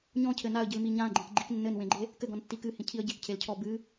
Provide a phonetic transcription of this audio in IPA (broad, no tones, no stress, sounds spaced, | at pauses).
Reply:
ɲ ɔ̃ cʰ ɘ n a ə̯ ɟ ɨ l m i ɲ ã ɡ͡ǃ ẽ k ɡ͡ǃ i k nː ɘ n w ẽ ɡ͡ǃ e | k ɘ ɡ ɔ̃ n tː i k ɨ h ĩ cʰ i ə̯ ɟ e k cʰ e l cʰ ɔ b ɨ